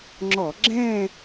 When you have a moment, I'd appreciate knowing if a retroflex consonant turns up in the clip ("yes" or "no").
no